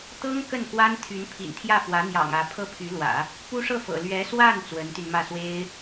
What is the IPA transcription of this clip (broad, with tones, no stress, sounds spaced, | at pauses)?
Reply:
t̪ ɤ˥ ŋ k ə˥˩ n k w a˥ n t̪ʰ y˧˥ n pʰ ḭ˨˩ n t̪ʰ j ä˥˩ f w ä˧˥ n̪ j ɑ̰˨˩ ŋ ä˧˥ pʰ ɤ˥˩ pʰ y˧˥ l w ä̰˨˩˦ | p u˥ ʂ ɤ˥˩ f ɤ̰˨˩ l ɥ ɛ˧˥ s w a˥˩ n t͡s w ə˧˥ n t̪ y˧ n m ä˥˩ s w e˥ ɪ̯